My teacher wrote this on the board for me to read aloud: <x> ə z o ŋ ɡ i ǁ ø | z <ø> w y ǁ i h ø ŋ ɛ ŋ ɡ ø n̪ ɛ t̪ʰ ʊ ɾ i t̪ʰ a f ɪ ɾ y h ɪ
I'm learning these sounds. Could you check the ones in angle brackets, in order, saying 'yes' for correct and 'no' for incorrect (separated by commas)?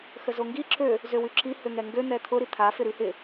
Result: yes, yes